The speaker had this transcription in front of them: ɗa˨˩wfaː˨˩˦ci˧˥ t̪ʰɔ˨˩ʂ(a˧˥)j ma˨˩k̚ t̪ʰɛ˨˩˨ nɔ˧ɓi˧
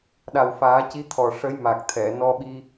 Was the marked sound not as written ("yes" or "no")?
yes